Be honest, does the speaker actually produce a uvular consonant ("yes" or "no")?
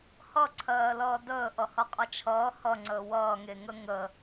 yes